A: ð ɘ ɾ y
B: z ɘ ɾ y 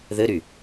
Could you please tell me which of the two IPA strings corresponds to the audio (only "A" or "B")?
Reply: A